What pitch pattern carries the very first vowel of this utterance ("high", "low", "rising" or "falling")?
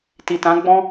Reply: low